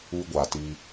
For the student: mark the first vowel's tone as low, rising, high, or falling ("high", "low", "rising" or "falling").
high